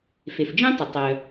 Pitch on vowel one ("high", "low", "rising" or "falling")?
low